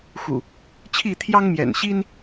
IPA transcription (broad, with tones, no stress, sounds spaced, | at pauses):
x ṵ˨˩ | t͡ɕʰ i˥˨ t̪ʰ j ɑ˦ ŋ m j ɛ̰˨˩ n ɕ i˦ n